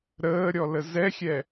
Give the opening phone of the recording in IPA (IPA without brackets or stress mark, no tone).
ɾ